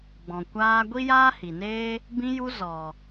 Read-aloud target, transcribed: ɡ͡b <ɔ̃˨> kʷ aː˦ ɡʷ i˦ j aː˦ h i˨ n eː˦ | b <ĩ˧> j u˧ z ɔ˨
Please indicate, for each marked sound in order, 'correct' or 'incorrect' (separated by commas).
correct, correct